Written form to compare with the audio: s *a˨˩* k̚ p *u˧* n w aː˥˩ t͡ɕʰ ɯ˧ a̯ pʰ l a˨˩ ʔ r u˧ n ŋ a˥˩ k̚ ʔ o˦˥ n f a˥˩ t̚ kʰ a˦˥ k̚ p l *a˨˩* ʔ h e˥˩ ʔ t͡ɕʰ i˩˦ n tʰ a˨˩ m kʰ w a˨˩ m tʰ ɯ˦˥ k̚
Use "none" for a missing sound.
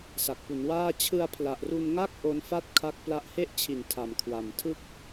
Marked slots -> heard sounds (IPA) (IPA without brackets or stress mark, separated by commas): a˨˩, u˩˦, a˦˥